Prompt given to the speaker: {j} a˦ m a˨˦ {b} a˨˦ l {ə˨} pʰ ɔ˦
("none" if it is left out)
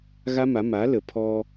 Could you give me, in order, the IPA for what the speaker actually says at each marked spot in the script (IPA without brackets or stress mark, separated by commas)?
ɣ, m, ə˨